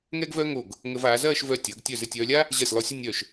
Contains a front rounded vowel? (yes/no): yes